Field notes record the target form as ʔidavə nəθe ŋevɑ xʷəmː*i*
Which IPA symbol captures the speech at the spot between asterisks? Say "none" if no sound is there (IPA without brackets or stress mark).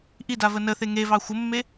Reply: e